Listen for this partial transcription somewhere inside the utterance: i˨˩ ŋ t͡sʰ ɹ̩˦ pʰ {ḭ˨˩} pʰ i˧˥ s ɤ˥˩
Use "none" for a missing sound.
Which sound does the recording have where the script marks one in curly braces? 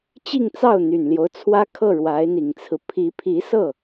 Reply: i˧˥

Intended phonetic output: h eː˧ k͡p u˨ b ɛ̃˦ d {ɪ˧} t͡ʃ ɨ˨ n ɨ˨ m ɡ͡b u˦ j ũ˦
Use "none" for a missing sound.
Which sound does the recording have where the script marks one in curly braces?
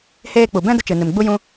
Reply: ə˧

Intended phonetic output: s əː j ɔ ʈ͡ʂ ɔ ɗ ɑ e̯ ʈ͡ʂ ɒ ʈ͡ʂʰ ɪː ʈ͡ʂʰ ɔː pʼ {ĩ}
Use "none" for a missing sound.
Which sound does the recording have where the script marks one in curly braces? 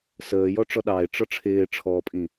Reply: ĩ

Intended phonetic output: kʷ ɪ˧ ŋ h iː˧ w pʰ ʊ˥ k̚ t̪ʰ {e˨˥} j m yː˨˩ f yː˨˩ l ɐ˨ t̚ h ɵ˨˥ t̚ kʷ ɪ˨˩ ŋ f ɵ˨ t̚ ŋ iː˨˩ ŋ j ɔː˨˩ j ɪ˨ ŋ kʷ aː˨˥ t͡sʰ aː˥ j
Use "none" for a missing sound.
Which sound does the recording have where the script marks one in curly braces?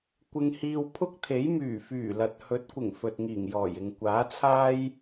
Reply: e˨˥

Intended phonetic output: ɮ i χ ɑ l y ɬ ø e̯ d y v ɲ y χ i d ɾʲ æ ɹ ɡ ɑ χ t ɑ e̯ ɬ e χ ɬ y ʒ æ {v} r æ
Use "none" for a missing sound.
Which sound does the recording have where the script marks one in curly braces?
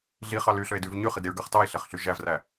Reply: v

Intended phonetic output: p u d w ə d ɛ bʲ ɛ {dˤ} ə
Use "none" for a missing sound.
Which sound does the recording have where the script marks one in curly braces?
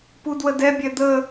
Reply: d̪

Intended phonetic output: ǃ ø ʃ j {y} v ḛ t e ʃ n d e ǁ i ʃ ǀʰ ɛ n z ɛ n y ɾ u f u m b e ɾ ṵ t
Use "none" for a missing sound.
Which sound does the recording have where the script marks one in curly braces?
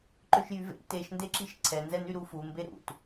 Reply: y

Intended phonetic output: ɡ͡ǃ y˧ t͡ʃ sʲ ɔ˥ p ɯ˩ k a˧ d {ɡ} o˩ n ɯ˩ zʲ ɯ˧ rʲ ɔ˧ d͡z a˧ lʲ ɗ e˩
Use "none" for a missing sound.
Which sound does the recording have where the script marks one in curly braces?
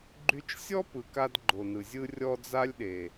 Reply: ɡ͡ǃ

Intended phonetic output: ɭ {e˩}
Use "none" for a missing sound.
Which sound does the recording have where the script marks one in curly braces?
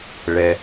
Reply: ɛ˩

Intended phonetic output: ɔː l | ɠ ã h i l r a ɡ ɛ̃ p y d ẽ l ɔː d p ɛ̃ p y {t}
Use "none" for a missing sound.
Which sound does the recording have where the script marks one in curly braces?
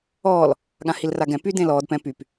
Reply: p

